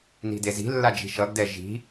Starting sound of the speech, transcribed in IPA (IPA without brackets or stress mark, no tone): n